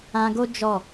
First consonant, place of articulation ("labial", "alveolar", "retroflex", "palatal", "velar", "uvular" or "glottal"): velar